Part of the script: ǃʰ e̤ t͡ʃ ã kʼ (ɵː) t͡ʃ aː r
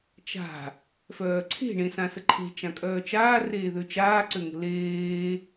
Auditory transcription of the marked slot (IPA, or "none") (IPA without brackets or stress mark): œː